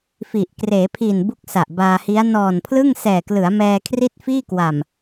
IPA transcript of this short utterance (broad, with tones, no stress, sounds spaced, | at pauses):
f i˨˩ ʔ k r eː˩˦ pʰ iː˨˩ n b u˥˩ k̚ s a˨˩ ʔ b aː˧ h i˦˥ a̯ n ɔː˨˩ n pʰ l ɯ˥˩ ŋ s ɛː˨˩ k l ɯ˩˦ a̯ m ɛː˧ kʰ r i˥˩ t̚ f iː˥˩ k w a˨˩ m